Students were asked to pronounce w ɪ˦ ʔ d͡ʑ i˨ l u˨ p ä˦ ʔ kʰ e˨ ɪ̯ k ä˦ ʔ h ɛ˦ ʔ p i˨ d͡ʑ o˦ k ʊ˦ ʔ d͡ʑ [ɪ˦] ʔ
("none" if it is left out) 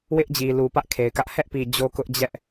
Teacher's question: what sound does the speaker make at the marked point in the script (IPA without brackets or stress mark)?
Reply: ɛ˦